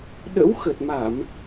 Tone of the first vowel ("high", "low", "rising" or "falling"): rising